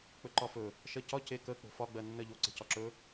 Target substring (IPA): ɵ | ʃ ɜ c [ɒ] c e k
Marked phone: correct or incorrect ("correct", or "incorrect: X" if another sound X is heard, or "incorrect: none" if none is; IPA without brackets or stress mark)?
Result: correct